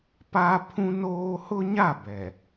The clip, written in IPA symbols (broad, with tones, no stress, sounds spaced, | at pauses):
p a˦ pʰ ũ˦ n oː˦ h ʊ˦ ɲ a˦˨ b ɛ˨